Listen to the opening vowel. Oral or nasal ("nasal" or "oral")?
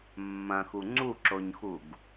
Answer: nasal